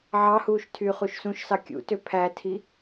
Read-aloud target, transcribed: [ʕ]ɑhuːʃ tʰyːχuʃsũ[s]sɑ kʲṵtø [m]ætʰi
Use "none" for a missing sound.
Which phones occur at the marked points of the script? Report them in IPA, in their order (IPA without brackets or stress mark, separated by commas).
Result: ʕ, ʃ, pʰ